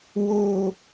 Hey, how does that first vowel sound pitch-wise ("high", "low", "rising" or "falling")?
falling